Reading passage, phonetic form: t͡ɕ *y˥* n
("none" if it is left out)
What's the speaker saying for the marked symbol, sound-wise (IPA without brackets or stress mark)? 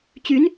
y˧˥